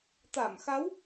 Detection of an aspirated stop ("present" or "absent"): absent